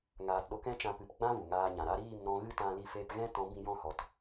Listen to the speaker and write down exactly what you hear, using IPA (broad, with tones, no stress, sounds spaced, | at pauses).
ŋ aː˨ t ɗ o˧ k ɛ̃˦ t͡ʃ ã˧ p ɨ˨ p ɡ͡b ã˦ v u˨ ŋ aː˧ ɲ ã˨ ɾ a˦ ɾ iː˦˨ m n ɔ̃˧ ɣ ɨ˦ t ã˧ l i˧ f e˧ p ɣ ɛ̃˦ t ɔ̃˨˦ b ĩ˧ j ɔ̃˦˨ h ɔ˨˦ t